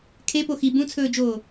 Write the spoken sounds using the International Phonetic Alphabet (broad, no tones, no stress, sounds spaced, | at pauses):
kʰ e p o x i b ũ t͡sʰ ɵː d͡ʒ oː